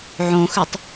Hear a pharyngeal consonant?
yes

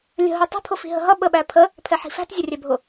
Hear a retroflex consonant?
no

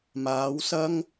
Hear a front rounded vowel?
no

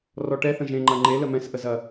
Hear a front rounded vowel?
no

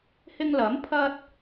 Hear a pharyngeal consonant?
no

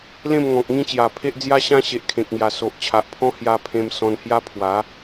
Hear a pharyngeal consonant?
no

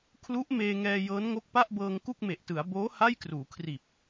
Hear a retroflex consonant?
no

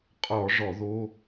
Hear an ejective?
yes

